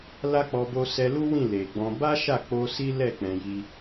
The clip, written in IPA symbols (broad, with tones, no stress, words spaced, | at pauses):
la˦k͡pɔ˧ bo˧sɛ˧lu˦ wĩ˦˨ le˨ɡ͡bɔ̃˧ ba˦ʃa˦˨k͡po˧ si˦lɛ˦˨ k͡pɛ̃˧ji˦